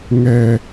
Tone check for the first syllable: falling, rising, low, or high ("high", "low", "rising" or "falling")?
low